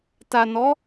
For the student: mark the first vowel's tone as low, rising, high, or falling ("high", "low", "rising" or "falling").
low